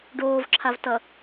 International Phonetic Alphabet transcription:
ɖ oː v ǁʰ a v t ʌ

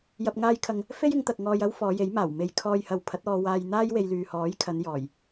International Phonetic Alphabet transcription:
j ɐ˧ p̚ ŋ aː˧ j kʰ ɐ˨ ŋ | f e˥ j ɪ˨˧ ŋ t̪ ɐ˨ k̚ ŋ ɔː˧ j ɐ˥ w f ɔː˨˧ j e˨˥ j m aː˨˩ w m e˨ j kʰ ɔː˧ j h ɐ˨ w pʰ ɐ˨˥ t̚ ɔː˧ w aː˧ j n̪ aː˥ j w e˧ j l yː˨ h ɔː˨˥ j kʰ ɐ˨˧ n j ɔː˨˩ j

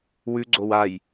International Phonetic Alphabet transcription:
w ʉ ɡ͡ǀ o w a j

